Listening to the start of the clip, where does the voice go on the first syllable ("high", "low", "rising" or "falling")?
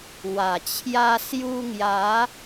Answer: low